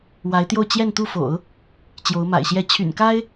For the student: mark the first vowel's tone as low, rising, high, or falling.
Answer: rising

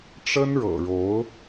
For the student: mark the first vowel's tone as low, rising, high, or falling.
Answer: high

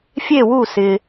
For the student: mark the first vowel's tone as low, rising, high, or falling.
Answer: falling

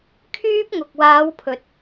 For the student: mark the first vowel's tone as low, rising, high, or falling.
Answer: high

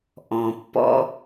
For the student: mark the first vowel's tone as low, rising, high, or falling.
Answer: low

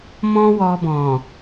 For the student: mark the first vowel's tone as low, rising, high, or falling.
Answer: high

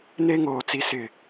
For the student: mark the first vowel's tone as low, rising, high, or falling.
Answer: high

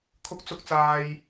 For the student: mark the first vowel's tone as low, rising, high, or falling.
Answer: rising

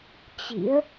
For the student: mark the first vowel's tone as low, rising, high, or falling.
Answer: rising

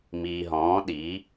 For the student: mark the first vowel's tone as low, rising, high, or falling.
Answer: low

